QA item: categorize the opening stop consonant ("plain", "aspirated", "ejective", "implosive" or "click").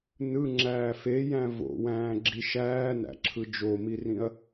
click